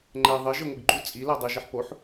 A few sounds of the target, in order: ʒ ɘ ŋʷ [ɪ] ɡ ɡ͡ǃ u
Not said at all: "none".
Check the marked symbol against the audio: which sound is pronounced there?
ɪ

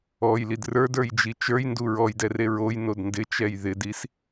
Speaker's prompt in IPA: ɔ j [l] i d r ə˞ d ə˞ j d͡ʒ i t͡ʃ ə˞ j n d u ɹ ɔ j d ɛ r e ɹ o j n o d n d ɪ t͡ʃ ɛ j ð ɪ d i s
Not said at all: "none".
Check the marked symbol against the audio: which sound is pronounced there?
l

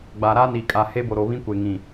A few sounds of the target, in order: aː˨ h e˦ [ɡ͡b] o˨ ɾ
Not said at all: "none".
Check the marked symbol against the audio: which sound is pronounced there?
b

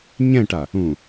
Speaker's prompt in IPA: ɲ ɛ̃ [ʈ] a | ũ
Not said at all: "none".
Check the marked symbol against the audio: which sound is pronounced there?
ʈ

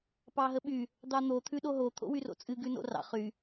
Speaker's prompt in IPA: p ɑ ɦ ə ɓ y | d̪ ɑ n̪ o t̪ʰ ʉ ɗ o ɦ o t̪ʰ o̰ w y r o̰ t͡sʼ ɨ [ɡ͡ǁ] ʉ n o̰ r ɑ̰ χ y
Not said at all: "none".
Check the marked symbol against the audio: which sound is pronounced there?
ɡ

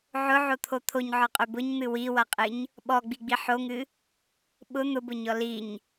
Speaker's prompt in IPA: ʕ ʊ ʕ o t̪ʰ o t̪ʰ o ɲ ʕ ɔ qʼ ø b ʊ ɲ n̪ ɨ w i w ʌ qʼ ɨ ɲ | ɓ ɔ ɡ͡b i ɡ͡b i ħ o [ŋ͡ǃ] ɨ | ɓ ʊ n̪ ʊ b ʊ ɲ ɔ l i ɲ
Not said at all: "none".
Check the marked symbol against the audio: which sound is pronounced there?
ŋ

